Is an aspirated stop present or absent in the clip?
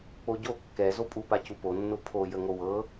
present